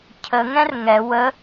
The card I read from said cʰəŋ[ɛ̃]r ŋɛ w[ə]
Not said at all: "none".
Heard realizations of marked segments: ɛ̃, ə

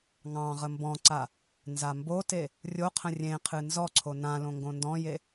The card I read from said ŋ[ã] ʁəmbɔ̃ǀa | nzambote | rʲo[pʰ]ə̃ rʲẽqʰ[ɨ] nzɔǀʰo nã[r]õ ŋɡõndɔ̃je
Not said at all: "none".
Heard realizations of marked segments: ɑ̃, qʰ, ɨ, l

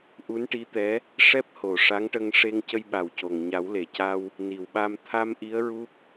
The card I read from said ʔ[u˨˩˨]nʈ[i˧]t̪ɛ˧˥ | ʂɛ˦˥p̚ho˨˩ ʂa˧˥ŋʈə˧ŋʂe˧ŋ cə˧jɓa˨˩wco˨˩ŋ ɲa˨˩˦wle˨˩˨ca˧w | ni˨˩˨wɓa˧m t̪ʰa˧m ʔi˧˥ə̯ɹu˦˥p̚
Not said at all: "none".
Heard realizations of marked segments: u˧˥, i˧˥

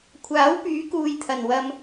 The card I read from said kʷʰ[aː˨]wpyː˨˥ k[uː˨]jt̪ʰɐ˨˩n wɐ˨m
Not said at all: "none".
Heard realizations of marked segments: aː˨˥, uː˨

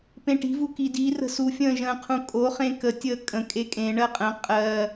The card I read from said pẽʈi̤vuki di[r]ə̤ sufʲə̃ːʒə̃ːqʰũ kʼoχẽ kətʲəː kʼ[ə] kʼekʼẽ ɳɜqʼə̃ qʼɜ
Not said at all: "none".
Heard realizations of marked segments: r, ə̃

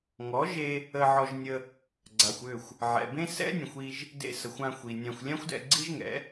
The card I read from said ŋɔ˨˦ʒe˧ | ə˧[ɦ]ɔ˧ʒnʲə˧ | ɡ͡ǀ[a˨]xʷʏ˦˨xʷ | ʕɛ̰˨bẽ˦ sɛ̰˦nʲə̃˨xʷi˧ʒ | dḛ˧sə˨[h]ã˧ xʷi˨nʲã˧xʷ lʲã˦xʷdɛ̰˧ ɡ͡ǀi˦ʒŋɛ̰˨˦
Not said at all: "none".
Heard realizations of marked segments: ʕ, a˨, xʷ

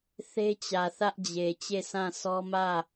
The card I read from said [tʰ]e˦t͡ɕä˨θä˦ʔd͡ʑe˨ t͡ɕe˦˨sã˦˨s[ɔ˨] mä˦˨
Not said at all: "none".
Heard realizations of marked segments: θ, ɔ˦

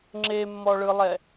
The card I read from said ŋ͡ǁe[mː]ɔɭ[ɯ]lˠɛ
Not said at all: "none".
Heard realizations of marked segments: mː, ɯ

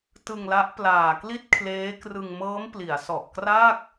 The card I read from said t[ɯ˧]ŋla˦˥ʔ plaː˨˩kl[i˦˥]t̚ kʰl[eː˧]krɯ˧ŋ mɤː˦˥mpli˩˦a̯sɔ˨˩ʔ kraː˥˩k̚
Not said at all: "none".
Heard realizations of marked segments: ɯ˧, i˥˩, eː˦˥

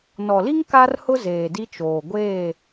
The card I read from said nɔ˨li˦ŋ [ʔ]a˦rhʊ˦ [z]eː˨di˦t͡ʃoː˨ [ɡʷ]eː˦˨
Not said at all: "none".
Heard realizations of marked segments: k, z, ɡʷ

